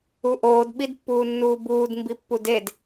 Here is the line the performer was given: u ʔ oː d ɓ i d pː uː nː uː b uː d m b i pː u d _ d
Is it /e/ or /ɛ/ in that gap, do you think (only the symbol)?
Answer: e